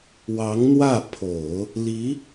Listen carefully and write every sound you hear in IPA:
w ɑ˧˥ ŋ n̪ w ä˥˩ pʰ o˨˩˦ ʊ̯ | l i˧˥

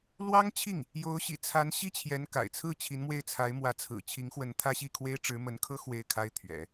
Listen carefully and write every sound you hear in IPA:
l w ɑ˥ ŋ t͡ɕʰ i˥˩ ŋ | j o˧˥ ʊ̯ ɕ ḭ˨˩ t͡sʰ a˧˥ n ɕ i˥ t͡ɕʰ j ɛ˧˥ n k a̰˨˩ ɪ̯ t͡sʰ ɹ̩˥˩ t͡ɕʰ i˧˥ n m w e˥˩ ɪ̯ t͡sʰ a˧˥ ɪ̯ m w ä˧˥ t͡sʰ ɹ̩˨˩ t͡ɕʰ i˧˥ ŋ x w ə˧˥ n t̪ʰ ä˥ ɕ i˥˩ kʰ w e˥ ɪ̯ ʈ͡ʂ ɻ̩˧˥ m ə˧˥ n kʰ ɤ˥ x w e˥˩ ɪ̯ kʰ a˥ ɪ̯ t̪ʰ ɥ ɛ̰˨˩˦

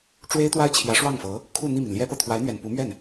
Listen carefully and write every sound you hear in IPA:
ʈ͡ʂ w e˥ ɪ̯ t̪ w a˥ ɪ̯ t͡ɕʰ j ä˧˥ ʂ w ɑ˥˩ ŋ f ɤ˧˥ | kʰ u˥˧ n̪ i˥˩ m i˩ n l j ɛ˥ p ɤ˨ t̪ʰ w a˧˥ ɪ̯ n̪ ɥ ɛ˨˩ n p u˧˥ m ɥ ɛ˥˩ n

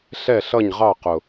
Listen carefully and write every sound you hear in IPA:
ɬ ɛ˥˨ ɬ ʌ˥˨ ɲ ʁ ɑ˥˨ q ʊ˨˩

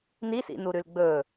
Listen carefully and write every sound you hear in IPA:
n i s ḭ n u ɾ ʉ l ɡ͡b ɵ

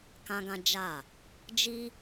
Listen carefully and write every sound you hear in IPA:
k ã˦ ɡ ã˦ d͡ʒ a˦˨ | d͡ʒ i˦

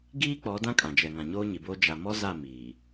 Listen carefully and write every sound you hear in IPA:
ɡ iː˦ k͡p ɔ˨˦ d ã˦ kʼ ã˨ d͡ʒ ɛ˨ ŋ ã˨ ɲ oː˦ ɲ i˨ b oː˦ d͡ʒ a˨ m ɔ˦ z a˦˨ m iː˨

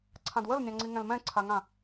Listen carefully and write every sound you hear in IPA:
ǀʰ ã d w ə l nʲ ɑ̃ ŋ͡ǀ i ŋ ɛ̃ l m ɛ̃ ǀʰ a ŋ ã

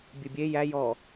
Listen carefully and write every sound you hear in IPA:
bʲ ɨ bʲ e j æ j ɔ

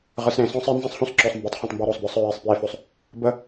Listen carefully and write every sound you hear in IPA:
ʁ ɯ˨ s ɾ ẽ˨ s ɔ̃˦ sˤ e˦ n z ẽ˦ sˤ h ũ˦ s ǁ ɔ˨ sˤ m b ɛ˨˦ tˤ χ ũ˨ tˤ m b ɔ˦ ɾ ɔ˨ sˤ b ə˞˦ sˤ ɹ e˦˨ sˤ p j e˦ f ɵ˦ sˤ | b ə˦

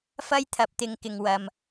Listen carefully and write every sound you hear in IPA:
f ɐ˥ j t̪ʰ ɐ˨˥ p̚ t̪ ɪ˨˧ ŋ k ɪ˨ ŋ w ɐ˨ m

